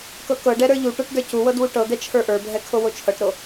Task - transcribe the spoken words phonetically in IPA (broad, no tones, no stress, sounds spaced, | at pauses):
k ɤ k ɤ ɖ ɛ ɾ ə˞ ʎ u ʈ ə˞ ʈ d ə˞ c u w ɤ d w u ʈ ɤ d̪ ɛ t͡ʃʰ ə˞ ʔ ə˞ bʱ ɛ kʰ o w o t͡ʃʰ ɤ ʈ ɾ o